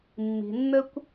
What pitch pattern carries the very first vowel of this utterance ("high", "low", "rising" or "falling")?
low